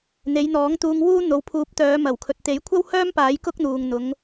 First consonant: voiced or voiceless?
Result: voiced